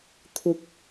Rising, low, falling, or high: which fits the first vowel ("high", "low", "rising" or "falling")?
low